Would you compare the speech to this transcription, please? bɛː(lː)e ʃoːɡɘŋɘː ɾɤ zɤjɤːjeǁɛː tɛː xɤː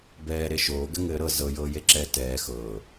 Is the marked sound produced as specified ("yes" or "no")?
no